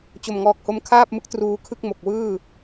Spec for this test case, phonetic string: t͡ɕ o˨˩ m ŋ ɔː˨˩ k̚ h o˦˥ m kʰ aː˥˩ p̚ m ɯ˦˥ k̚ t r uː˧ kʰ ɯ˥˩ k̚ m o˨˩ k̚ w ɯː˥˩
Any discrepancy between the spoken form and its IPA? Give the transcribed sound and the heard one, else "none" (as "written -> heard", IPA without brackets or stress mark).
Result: none